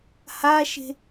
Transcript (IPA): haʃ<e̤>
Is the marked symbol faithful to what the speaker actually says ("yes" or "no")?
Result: yes